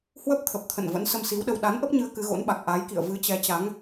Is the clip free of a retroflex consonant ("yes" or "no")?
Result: yes